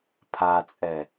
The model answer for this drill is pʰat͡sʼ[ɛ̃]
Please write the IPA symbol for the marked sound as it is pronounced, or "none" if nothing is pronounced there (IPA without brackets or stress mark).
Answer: ɛ